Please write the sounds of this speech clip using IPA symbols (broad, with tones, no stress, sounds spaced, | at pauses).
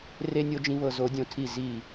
r e˨ nʲ o˨ d͡ʒ ĩ˨ β ɤ˨ z o˨˦ dʲ õ˨ tʰ i˦˨ z i˦˨